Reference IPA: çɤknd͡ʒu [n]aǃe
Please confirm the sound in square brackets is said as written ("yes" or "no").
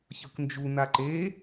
yes